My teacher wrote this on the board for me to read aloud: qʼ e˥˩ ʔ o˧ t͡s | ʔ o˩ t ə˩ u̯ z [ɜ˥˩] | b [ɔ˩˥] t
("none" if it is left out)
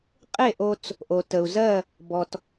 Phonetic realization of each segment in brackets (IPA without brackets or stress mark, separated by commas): ɜ˥˩, ɔ˩